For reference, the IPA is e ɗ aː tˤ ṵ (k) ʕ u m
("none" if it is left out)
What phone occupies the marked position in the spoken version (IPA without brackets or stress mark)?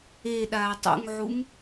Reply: ŋ